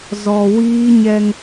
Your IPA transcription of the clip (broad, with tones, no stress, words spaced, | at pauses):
zɔ˨ wiː˦ɲɛ˦ŋ